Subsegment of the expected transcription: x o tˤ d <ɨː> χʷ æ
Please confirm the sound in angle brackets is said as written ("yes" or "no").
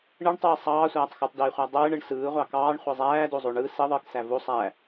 no